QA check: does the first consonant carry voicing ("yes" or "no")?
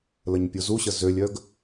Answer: yes